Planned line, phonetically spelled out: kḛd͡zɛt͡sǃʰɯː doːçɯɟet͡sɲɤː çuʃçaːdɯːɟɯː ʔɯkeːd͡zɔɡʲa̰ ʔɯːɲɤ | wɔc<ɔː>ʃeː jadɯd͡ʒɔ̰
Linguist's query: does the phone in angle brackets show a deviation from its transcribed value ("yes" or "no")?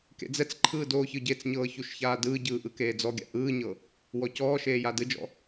no